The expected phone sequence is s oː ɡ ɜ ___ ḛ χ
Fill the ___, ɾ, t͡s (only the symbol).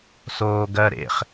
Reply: ɾ